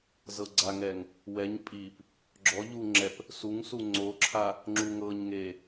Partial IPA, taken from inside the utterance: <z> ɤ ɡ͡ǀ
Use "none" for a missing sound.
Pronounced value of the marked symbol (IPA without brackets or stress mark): z